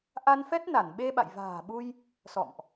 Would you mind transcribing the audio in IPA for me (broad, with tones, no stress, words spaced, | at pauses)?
ʔa˧nfɛ˦˥t̚ na˧˩nɓe˧ɓa̰˧˨j va̤ː˨˩ɓu˧j | sɔ̰˧˨mʔ